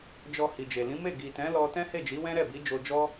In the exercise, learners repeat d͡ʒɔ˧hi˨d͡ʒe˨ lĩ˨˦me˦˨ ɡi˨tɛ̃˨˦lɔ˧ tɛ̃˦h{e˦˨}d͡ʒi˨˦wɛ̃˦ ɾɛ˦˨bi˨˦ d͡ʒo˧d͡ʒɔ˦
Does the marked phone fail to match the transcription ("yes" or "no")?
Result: no